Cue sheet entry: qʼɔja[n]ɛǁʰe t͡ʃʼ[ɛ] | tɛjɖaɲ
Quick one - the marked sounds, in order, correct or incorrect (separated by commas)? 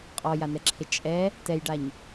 correct, correct